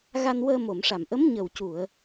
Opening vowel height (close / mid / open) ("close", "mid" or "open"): open